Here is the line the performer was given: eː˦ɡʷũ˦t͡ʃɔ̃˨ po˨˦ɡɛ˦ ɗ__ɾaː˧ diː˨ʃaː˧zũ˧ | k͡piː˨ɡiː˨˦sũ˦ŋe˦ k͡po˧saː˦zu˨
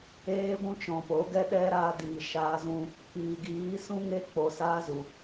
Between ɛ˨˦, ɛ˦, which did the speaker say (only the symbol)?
ɛ˦